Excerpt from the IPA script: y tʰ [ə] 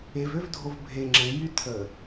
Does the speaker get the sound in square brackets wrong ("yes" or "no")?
no